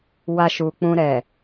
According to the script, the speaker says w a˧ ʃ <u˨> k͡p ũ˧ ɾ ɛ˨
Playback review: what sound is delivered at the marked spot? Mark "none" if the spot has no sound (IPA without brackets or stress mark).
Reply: u˨